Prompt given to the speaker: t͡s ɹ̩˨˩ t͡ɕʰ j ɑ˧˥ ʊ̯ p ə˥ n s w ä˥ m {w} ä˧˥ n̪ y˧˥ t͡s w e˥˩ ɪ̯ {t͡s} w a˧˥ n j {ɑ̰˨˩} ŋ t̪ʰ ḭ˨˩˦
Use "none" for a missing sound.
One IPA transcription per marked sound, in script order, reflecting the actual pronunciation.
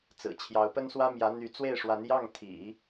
j, ʂ, ɑ˥˩

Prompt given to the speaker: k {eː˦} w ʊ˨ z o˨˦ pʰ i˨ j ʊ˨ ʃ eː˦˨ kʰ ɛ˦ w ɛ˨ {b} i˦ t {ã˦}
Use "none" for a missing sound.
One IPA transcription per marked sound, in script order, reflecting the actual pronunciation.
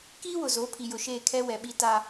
iː˦, ɓ, a˦

